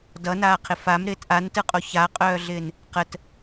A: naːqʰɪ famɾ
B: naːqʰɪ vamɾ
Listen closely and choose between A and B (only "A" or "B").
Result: A